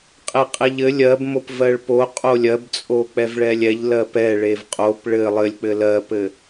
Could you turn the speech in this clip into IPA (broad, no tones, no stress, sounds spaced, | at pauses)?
qʼ e qʼ e ʎ ɘ lʲ ɜ b m o p v ɜ ɭ p o qʼ o lʲ ɜ b t͡sʼ o k͡p ɛ v ɭ ɛ lʲ ɛ ʎ l ɜ p ɛ ɭ e v qʼ o p ɭ ɘ lˠ ɘ lʲ k͡p ɘ l ɜ p ɘ